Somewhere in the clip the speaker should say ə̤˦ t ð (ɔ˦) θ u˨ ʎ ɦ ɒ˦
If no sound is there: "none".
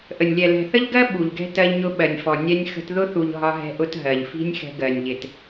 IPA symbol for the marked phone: ʊ˦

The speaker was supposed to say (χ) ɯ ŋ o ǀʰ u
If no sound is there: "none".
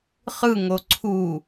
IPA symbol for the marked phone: χ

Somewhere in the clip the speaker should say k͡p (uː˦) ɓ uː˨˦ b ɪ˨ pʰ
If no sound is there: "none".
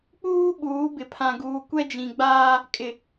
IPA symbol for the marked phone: uː˦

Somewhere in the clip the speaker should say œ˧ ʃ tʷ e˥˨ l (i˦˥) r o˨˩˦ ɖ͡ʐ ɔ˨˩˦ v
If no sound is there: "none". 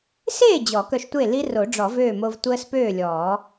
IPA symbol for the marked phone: i˦˥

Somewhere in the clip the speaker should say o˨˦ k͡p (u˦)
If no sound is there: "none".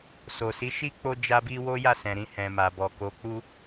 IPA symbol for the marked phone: u˦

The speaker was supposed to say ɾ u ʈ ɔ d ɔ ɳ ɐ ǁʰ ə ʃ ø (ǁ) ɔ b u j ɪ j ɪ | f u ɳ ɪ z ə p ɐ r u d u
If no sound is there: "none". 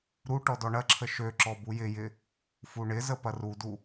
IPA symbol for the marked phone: ǁ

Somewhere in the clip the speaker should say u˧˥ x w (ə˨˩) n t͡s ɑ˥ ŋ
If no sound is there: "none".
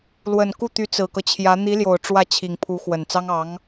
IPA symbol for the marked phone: ə˨˩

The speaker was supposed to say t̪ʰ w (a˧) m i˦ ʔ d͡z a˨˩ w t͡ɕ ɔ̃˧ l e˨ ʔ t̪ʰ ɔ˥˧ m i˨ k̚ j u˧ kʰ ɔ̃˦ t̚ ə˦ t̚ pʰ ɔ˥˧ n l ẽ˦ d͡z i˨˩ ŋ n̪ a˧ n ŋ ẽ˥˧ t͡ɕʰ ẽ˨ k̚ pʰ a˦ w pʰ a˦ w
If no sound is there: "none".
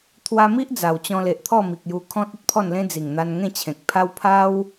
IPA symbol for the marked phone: a˧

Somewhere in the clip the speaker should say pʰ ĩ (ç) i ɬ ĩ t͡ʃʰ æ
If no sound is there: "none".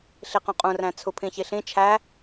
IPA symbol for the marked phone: ç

